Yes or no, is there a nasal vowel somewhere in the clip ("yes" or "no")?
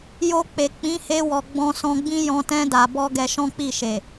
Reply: yes